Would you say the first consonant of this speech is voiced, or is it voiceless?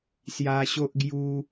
voiceless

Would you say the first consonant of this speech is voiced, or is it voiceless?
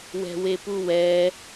voiced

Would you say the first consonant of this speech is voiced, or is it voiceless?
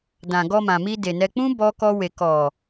voiced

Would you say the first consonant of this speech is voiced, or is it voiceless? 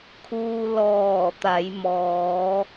voiceless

